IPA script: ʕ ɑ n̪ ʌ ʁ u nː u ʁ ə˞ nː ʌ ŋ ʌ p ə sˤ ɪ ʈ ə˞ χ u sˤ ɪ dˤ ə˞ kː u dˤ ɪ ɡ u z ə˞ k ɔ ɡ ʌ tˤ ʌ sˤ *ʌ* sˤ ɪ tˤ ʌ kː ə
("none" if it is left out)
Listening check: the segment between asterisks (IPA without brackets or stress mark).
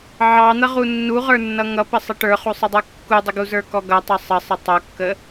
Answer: ə